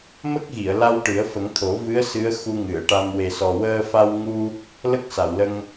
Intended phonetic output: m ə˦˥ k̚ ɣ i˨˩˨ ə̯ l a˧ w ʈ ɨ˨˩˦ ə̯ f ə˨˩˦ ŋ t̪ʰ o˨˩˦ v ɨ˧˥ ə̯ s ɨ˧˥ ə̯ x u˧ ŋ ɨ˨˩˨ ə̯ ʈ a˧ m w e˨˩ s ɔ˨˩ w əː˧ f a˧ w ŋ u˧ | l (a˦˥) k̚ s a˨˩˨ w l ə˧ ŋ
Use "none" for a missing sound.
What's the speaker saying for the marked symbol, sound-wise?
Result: ə˦˥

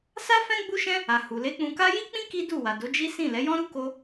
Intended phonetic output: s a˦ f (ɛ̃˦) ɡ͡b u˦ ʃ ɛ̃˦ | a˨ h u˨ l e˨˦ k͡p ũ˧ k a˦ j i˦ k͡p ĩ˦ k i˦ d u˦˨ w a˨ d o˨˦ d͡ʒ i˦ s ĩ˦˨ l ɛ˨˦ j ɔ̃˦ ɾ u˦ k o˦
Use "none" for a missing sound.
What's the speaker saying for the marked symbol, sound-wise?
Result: ɛ̃˦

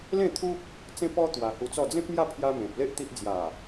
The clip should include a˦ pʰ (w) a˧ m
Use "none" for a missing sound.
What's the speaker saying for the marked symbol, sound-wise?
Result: j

